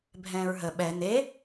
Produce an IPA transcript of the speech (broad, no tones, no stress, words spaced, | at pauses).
bʱɛ̃ːɹɦə ɓɛ n̪e